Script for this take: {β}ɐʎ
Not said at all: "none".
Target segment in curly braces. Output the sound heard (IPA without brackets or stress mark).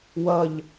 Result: w